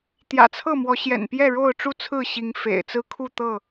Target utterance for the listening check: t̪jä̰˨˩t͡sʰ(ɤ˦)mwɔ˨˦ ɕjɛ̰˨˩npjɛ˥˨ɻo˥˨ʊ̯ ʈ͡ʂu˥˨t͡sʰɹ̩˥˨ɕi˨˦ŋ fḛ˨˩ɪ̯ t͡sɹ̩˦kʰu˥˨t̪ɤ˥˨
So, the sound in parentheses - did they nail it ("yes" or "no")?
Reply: no